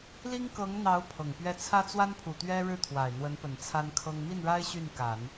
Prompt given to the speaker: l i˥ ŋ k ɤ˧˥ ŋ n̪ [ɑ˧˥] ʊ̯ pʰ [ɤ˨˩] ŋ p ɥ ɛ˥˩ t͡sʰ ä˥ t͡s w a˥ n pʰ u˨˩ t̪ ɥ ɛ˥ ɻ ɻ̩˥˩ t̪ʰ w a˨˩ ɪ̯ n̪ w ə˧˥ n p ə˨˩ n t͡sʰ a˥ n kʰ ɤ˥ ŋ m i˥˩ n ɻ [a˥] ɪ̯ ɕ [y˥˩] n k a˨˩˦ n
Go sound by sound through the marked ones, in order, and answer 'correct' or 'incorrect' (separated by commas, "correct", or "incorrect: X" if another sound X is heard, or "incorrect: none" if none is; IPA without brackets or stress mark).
correct, correct, correct, correct